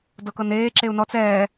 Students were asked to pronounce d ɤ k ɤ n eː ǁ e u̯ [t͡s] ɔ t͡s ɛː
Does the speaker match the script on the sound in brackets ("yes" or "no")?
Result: no